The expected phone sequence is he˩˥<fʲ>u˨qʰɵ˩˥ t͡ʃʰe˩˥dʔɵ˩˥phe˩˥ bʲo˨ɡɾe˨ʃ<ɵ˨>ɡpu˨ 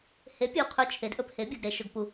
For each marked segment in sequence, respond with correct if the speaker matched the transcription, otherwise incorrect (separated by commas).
incorrect, correct